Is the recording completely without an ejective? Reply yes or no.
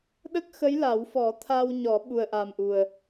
yes